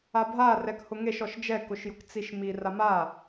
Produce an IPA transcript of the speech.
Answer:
a bʱ a r ɛ k h ʊ ŋ e ʃ ɔ ʃ d͡ʒ ɛ k ʊ ʃ j ʊ k t͡s i ʃ m i r a m a

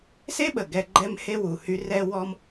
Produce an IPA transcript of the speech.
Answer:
s e˦ ɓ ə˩ ɡ ɛ˨ ɡ͡ǃ ɛ˦ m h e˦ w u˨ h y˦ r ɛ˥ w ɔ˦ m

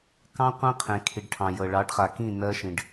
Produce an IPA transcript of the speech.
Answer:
k ɑ̃˦ qʷ ẽ˦ qʰ ẽ˨ kʰ i˨ ɖ ʈʰ ɑ̃˨ j ɤ˨ ɭ ɑ˨˦ ɖ χ a˨ k ĩ˦˨ n ɜ˦ ʃ ĩ˧ ɖ

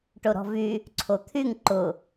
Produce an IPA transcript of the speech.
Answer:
ʈ o ɾ ɔ̤ v y | ǀʰ o t̪ʰ y ŋ ǃ ʊ

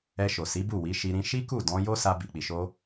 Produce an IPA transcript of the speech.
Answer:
ɛ˧ ʃ o˨ s i˨˦ b u˦˨ w i˨˦ ʃ i˧ ɾ ĩ˧ ʃ i˦ k u˦˨ d ɔ̃˧ j o˦ s a˧ b i˨ k͡p i˨ ʃ o˧

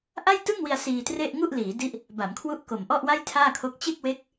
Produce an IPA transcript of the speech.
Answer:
ʔ a˥˩ j t ɯ˥˩ ŋ w i˧ a̯ s iː˧ t r e˥˩ ʔ ŋ u˥˩ ʔ l iː˩˦ d i˦˥ ʔ | b a˩˦ m kʰ w u˦˥ ʔ k o˨˩ m ʔ ɔ˥˩ ʔ w a˥˩ j tʰ aː˥˩ kʰ o˦˥ k̚ t͡ɕ e˥˩ k̚ w e˦˥ k̚

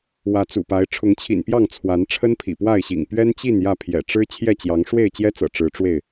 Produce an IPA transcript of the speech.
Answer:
w ä˨˦ t͡s ṵ˨˩ p a˨˦ ɪ̯ ʈ͡ʂʰ ʊ˨˦ ŋ t͡ɕʰ ḭ˨˩ n p j ɑ˥˨ ŋ t͡sʰ w a˨˦ n ʈ͡ʂʰ ə˦ n pʰ ḭ˨˩ p w a˥˨ ɪ̯ ɕ ḭ˨˩ ŋ p ɥ ɛ˦ n t͡ɕ i˥˨ n j ä˥˨ pʰ j ɛ̰˨˩ ʈ͡ʂ ɻ̩˦ t͡ɕʰ j ɛ˥˨ t͡ɕ j ɑ˨˦ ŋ ʂ w e˥˨ ɪ̯ t͡ɕ j ɛ˦ t͡s ɤ̰˨˩ ʈ͡ʂ ɻ̩˨˦ ʈ͡ʂ w e˥˨ ɪ̯

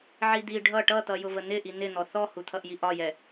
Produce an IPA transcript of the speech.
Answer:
ʕ i d̪ i ɖʱ ʌ ʈ ʌ t̪ ʌ j ʊ v ə n̪ ɪ ʔ i n̪ ɪ n̪ ɔ θ ɔ h u t̪ʰ ʌ ʔ j i ʔ ɒ j ɛ

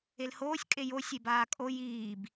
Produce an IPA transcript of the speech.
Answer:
e l h oː sʲ kʼ e j o sʲ e b aː kʼ o j iː b

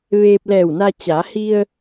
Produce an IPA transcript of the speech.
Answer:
ʋ eː˧ p̚ l ɛː˧˩ w n a˧ t͡ɕ a˩˧ h i˧ ə̯

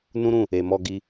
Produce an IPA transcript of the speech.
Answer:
n ũ˦ ɾ ũ˦˨ | e˨ m ɔ˧ ɡ i˧

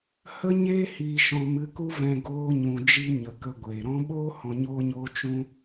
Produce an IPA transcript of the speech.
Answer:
h ə˦ ɲ eː˦ h iː˧ ʃ ɔ̃˧ m ɨ˧ k u˦ v ɛ̃˧ ɡ oː˧ ɲ ũ˨ d͡ʒ i˧ ɲ ə˨ k ə˧ ɡʷ eː˨ ɾ ɔ̃˦ ɓ oː˦ h ɔ̃˧ ɲ oː˦ ɲ oː˦ t͡ʃ ũ˦

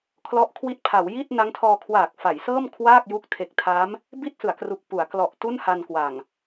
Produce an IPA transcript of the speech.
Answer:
kʰ l ɔ˦˥ ʔ kʰ w i˦˥ t̚ pʰ a˩˦ w j i˥˩ t̚ n a˦˥ ŋ tʰ ɔː˧ kʰ w aː˨˩ k̚ f a˩˦ j s ɤː˥˩ m kʰ w aː˥˩ k̚ j u˦˥ k̚ tʰ e˨˩ k̚ tʰ a˦˥ m | b i˥˩ t̚ s ɯ˩˦ a̯ k r u˨˩ k̚ p u˩˦ a̯ k l ɔ˨˩ ʔ t u˥˩ n h a˧ n k w a˨˩ ŋ

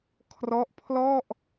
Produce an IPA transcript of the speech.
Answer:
kʰ r ɔ˦˥ ʔ pʰ l ɔ˥˩ ʔ

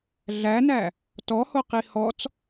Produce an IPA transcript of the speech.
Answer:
ɮ æ n æ | t ɔ h o q i h ɔ t͡s

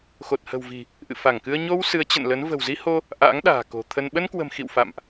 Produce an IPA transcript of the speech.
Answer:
x o˨˩ t̚ h ə̤˨˩ w v i̤˨˩ | ʔ ɨ̰˧˨ f a˧˩ ŋ k ɨ˧ ə̯ ɲ o˧ w s ɨ˨˦ ə̯ t͡ɕ ə̰˧˨ n l ə˨˦ n v ə̤˨˩ w z i˧ h o˧ | ʔ a̰ː˧˥ ŋ ɗ a̤ː˨˩ k o̤˨˩ t̪ʰ ə˧ n ɓ ə˧ n k w ə̤˨˩ m x ḭ˧˨ w f a̰˧˨ m ʔ

